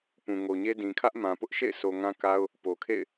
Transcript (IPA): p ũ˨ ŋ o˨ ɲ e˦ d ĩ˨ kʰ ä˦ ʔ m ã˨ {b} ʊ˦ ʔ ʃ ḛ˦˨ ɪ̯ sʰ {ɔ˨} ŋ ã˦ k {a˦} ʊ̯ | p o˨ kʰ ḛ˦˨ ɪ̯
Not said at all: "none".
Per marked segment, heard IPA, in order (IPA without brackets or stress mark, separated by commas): p, o˨, a˦